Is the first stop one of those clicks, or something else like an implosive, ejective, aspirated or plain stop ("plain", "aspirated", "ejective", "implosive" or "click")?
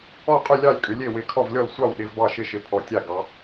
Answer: ejective